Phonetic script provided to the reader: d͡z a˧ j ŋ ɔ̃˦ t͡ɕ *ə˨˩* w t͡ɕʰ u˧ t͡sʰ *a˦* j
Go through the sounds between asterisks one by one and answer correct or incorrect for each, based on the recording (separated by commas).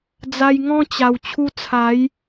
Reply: incorrect, incorrect